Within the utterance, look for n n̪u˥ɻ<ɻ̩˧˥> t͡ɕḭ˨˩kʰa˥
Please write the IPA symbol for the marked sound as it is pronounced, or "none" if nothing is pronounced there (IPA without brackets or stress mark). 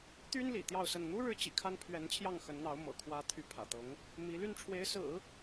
ɻ̩˧˥